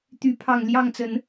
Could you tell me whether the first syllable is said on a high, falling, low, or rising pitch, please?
rising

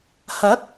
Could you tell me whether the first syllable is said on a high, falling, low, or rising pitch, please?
rising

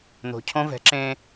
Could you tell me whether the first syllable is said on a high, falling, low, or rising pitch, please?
low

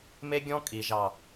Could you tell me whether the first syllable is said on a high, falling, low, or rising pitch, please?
high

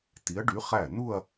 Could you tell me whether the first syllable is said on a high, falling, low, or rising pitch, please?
rising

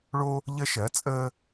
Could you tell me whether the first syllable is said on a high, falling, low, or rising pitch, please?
high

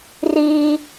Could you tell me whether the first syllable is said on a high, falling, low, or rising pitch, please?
high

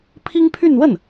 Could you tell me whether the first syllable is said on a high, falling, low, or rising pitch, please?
high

